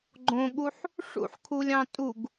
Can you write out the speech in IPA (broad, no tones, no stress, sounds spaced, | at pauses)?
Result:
ɡ͡ǃ õ ɠ u ħ | ʂ ṵ ħ kʰ u lʲ ɑ̃ tʼ u ɡ